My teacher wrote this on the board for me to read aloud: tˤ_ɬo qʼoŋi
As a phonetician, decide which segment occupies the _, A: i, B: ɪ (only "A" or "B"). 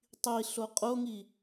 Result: A